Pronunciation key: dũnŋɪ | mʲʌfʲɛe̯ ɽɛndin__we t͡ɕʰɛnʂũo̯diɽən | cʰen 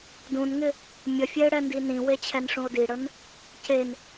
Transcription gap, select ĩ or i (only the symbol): ĩ